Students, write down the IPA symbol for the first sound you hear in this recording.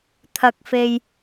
t̪ʰ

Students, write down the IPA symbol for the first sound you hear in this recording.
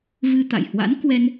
v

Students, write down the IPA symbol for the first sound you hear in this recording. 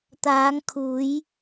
t̪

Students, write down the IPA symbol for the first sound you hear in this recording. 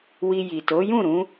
w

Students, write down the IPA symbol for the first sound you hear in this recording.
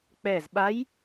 k͡p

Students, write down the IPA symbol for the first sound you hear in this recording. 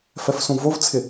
f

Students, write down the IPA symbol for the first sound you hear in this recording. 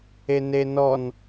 e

